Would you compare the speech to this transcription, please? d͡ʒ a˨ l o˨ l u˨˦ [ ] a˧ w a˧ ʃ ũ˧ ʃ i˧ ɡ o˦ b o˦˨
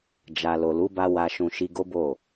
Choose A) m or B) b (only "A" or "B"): B